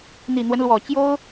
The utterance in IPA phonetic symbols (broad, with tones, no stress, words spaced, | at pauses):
n̪i˨˩n̪wə˦nlwɔ˨˩t͡ɕjo˥ʊ̯